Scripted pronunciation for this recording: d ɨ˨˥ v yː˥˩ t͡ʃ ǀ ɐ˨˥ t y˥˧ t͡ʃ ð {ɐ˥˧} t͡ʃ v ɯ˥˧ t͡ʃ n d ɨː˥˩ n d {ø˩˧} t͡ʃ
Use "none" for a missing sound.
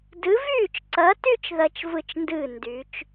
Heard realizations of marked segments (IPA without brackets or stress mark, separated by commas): ɐ˥˧, y˩˧